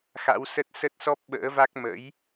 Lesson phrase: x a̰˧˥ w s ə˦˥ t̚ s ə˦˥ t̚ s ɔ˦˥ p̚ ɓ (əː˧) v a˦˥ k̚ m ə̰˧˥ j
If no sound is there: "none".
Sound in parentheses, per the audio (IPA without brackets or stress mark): ə̰ː˧˥